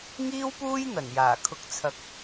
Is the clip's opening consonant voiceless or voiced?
voiced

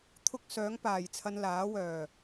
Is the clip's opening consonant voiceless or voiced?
voiceless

